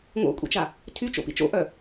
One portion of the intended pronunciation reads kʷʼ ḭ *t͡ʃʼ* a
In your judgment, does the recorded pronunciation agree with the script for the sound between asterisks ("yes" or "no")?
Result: no